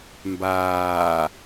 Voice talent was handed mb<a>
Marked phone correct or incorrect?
incorrect